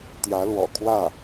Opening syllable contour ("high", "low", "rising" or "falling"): rising